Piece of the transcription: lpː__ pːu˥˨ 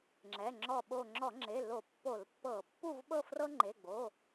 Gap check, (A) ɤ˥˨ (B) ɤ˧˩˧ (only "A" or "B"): B